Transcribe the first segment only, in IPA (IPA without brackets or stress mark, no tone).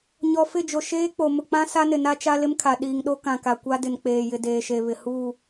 ɲ